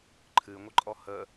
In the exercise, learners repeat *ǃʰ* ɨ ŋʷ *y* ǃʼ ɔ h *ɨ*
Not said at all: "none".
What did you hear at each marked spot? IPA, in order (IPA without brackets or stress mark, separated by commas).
ǃʰ, ɨ, ə